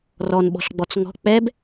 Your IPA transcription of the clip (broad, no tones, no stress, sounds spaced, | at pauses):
r ɔ n ɓ ɔ̤ ɬ ɡ͡b ɔ t͡s ŋ ɔ̤ k͡p ɛ b